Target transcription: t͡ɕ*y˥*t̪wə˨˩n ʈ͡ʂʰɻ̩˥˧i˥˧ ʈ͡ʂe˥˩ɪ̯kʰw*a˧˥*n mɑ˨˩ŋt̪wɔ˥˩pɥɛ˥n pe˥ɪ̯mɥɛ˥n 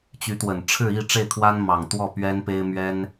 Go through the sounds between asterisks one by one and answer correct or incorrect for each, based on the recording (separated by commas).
incorrect, incorrect